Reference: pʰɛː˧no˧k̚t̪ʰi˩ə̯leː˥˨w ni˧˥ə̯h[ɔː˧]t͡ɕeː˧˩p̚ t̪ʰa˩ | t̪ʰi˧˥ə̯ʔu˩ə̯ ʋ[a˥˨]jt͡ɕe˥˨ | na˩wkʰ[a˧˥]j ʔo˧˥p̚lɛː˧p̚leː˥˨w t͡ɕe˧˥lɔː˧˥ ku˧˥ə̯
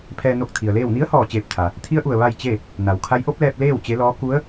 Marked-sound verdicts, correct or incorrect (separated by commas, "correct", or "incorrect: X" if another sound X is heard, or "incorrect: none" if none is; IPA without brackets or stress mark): incorrect: ɔː˧˩, correct, correct